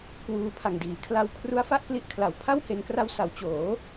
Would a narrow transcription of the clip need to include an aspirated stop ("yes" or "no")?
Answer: yes